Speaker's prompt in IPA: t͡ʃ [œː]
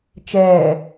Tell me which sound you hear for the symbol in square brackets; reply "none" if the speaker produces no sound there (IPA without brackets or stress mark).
ɛː